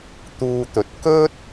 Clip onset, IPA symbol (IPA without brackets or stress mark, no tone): t̪